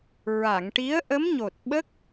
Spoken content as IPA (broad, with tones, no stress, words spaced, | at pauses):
ɹa˨˩˨ŋʈi˧˥ə̯ ʔə˧˥mɲo˨˩t̚ ɓə˦˥k̚